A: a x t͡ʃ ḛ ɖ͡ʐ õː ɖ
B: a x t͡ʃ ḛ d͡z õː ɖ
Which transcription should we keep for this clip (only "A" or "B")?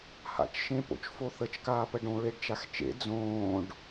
B